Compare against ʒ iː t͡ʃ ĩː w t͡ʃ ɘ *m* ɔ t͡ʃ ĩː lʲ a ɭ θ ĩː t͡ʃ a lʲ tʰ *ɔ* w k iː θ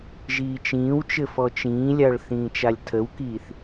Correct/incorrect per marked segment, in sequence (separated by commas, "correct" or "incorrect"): incorrect, incorrect